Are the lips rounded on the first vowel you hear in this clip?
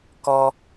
yes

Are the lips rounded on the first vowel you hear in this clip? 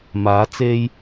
no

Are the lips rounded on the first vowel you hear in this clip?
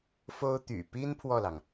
yes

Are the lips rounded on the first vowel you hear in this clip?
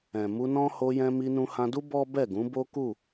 no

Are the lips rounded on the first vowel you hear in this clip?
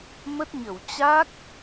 no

